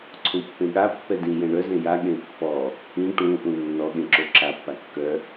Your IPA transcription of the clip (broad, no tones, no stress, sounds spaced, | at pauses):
ǀʰ ũ pː ẽ ɠ a pː ɛ d ĩ j ɛ̃ ɳ œ z ẽ j a ɠ ẽ pː ɔ | ĩ ʈ ũ ʔ ũ nː ɔ ɠ ẽ ǁ o ǁ a pː a kː œ